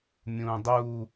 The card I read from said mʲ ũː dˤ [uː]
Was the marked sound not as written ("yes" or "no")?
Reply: no